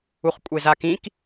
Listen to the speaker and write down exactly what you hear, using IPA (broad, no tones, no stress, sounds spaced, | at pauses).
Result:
u χ kʷʼ e z a k ĩ k